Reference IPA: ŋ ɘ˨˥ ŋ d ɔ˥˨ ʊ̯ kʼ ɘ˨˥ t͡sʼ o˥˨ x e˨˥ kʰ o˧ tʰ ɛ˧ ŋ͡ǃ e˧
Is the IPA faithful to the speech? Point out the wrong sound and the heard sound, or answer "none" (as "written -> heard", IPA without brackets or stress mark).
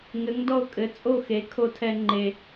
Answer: none